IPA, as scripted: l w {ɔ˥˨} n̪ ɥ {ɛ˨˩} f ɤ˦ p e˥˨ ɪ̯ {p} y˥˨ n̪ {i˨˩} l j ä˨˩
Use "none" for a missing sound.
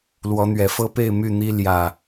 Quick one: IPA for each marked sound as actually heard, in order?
ɔ˨˦, ɛ˨˩, m, i˦

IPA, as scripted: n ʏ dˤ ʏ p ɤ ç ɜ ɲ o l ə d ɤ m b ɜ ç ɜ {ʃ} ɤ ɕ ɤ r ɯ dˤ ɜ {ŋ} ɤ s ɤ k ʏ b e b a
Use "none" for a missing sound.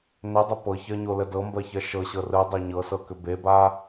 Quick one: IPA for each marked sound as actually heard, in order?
ʃ, ɲ

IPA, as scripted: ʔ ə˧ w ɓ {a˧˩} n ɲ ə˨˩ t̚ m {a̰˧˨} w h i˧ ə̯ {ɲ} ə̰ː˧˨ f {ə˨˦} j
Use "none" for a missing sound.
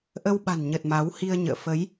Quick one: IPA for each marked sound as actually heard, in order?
a̤˨˩, a˨˦, ɲ, ə˨˦

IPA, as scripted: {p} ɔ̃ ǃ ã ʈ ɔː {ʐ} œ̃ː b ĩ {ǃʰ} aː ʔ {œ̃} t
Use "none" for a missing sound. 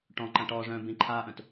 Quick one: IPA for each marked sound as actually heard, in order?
ʈ, ʐ, ǃʰ, œ̃

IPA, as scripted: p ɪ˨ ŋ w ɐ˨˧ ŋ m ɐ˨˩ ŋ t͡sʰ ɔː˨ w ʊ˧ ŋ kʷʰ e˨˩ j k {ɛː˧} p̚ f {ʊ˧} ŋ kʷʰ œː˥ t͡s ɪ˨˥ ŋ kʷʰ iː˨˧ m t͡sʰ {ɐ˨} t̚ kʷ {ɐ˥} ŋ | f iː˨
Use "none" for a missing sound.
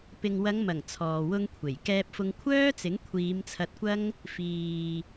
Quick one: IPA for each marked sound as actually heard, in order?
ɛː˧, ʊ˧, ɐ˧, ɐ˥

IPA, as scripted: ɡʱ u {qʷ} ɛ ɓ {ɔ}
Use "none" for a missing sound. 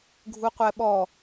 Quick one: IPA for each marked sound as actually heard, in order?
qʷ, ɔ

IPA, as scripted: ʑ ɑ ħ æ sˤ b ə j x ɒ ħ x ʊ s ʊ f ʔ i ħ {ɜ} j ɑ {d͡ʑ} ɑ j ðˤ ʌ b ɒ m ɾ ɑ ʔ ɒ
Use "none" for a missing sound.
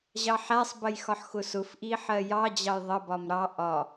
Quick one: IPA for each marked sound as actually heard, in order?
ɜ, d͡ʑ

